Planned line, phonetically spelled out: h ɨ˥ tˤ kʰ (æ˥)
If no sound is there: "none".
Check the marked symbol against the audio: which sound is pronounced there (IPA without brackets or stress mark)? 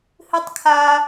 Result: a˥